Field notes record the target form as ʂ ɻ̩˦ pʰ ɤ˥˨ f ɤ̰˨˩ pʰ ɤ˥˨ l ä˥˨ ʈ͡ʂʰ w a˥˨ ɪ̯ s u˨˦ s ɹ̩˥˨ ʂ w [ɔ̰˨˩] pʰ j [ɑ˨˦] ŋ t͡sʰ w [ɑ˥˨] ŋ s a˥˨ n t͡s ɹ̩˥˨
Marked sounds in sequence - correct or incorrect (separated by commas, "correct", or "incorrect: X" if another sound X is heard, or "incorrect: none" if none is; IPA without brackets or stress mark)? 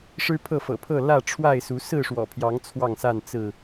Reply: correct, correct, correct